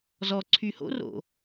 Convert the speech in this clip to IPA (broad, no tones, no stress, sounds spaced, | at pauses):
z ɔ ǀʰ y h o̰ r o̰